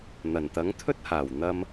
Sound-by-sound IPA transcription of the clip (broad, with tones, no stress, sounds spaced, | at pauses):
n̪ ɐ˨˩ n t̪ ɐ˨˥ ŋ t̪ʰ ɵ˥ t̚ h aː˨˩ w n̪ ɐ˧ m